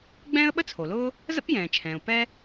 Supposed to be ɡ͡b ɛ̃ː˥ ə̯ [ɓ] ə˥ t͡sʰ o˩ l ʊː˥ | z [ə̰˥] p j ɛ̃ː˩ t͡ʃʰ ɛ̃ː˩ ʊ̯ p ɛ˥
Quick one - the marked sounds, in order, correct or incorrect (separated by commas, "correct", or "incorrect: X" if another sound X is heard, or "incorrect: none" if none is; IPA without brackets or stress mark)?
correct, correct